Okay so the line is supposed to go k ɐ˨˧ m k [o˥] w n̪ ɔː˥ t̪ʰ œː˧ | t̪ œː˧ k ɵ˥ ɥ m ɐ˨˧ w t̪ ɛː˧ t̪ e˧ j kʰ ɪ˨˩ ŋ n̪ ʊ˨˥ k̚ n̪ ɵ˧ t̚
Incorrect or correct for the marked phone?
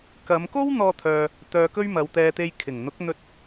correct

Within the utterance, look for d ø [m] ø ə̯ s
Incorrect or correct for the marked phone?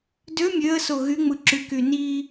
incorrect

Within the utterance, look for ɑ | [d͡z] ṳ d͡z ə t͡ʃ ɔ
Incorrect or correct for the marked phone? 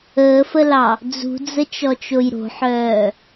correct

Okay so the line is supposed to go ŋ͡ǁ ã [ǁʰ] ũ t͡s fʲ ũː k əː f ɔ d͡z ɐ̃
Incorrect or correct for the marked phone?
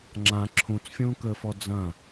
correct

